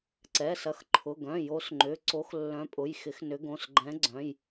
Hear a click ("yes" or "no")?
yes